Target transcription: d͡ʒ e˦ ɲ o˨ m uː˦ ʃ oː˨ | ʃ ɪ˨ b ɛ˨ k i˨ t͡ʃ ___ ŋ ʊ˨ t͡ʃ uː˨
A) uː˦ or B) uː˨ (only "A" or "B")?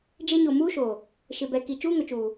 A